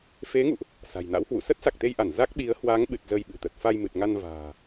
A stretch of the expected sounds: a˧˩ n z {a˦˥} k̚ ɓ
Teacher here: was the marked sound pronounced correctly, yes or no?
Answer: yes